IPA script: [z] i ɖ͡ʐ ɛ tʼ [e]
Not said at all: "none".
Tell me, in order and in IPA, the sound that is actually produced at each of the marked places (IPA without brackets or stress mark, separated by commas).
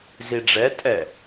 z, ɛ